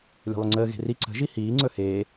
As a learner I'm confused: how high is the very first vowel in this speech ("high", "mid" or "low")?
mid